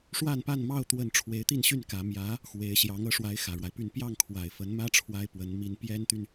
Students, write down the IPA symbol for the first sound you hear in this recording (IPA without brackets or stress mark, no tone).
ʂ